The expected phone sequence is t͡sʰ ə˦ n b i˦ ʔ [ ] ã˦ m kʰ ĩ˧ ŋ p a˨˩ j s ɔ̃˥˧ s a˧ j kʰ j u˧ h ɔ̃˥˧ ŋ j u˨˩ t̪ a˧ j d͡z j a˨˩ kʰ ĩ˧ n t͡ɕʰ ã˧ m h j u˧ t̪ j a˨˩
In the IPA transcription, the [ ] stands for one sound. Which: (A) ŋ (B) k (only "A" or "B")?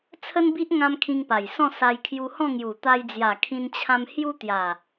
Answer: A